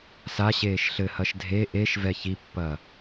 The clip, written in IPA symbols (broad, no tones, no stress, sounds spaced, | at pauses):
s a ɕ eː ʃ ɬ ɘ h ɐ ʃ dʱ e ʔ e ʃ v ɛ ç i pː ɐ